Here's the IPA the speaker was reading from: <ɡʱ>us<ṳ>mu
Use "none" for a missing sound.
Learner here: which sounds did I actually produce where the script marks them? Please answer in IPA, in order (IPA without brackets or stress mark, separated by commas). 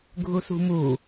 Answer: ɡʱ, ṳ